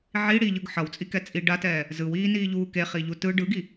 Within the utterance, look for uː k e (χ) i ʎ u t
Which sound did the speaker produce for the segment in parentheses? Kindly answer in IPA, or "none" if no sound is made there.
χ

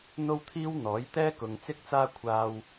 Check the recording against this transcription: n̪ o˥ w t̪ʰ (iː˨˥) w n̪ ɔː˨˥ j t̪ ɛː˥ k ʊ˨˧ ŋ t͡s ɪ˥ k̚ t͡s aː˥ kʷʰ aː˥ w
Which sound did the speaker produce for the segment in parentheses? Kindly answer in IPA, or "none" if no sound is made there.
iː˥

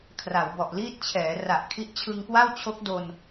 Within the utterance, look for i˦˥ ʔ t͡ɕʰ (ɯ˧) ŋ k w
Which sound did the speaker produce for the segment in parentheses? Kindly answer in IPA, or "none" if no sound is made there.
ɯ˧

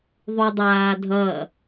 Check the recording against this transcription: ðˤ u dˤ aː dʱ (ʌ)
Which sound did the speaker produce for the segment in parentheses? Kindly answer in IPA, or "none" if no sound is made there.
ʌ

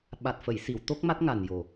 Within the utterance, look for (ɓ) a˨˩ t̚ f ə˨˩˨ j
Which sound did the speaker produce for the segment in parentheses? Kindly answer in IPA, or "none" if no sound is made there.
ɓ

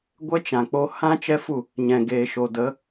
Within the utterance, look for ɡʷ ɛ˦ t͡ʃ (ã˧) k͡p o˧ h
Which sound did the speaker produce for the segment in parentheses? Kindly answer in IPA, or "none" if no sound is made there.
ã˨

